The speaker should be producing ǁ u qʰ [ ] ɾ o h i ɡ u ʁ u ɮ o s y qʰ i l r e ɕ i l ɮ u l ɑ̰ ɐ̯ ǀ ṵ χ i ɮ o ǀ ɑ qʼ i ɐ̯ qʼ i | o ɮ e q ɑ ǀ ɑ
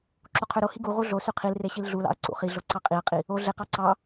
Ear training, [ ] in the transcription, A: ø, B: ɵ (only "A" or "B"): A